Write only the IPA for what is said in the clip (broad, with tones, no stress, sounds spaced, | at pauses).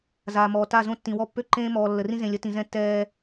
z aː˨ m ɔː˨ t a˦˨ z õ˦˨ tː ĩ˨ w ɔ˦ pː ø˦ ǃ ẽː˦ m ɔː˨ lː ə˨ r ĩ˦ z ẽ˨ lʲ ə˦ t ĩ˨ z ɛ̃˦ tː ɛː˦